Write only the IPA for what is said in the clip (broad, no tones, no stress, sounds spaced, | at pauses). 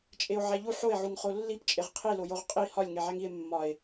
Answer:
t͡ʃʼ e o̯ ʕ æ ʎ u ħ o e̯ ʕ u ŋ χ o lː i p t͡ʃʼ e ʁ qʰ i l o j o ʁ qʼ i h ɒ lʲ ŋ e ʕ æ ŋ i e̯ mː ɒ e̯